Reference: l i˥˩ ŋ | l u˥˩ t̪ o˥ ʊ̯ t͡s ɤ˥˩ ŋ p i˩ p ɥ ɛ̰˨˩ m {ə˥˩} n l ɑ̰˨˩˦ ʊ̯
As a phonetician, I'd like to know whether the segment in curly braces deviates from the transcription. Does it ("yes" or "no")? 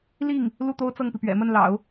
no